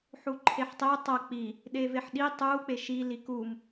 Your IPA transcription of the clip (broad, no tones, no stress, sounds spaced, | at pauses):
ħ u ǃʰ e ħ tˤ e tˤ ɐ k͡p i | ɗ e v e ħ ɗ i tˤ u k͡p e ʃ i l i k u m